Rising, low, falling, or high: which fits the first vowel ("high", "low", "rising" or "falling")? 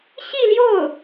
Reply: falling